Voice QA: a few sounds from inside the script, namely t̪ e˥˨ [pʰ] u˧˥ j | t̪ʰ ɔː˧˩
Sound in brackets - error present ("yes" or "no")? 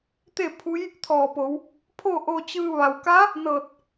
no